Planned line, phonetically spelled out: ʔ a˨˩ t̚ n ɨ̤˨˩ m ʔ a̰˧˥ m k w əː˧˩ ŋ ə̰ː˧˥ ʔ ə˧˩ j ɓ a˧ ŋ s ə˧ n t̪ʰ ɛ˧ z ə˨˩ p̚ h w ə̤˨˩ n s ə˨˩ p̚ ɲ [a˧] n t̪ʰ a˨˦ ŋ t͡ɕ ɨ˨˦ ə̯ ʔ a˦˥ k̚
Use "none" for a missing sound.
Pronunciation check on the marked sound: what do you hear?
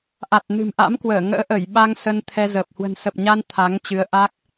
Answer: a˧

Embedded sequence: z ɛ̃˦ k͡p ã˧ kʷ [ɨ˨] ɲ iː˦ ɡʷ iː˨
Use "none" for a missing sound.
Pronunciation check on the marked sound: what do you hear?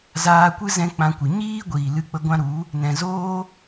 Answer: ɨ˨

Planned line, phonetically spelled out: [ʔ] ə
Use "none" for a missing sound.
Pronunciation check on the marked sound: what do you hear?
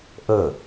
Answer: ʔ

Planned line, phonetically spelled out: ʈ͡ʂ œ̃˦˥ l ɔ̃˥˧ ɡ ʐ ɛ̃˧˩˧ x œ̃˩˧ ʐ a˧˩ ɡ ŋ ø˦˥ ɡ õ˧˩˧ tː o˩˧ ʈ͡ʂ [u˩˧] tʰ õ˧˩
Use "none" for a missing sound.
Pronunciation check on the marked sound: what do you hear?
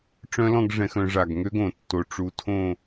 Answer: u˩˧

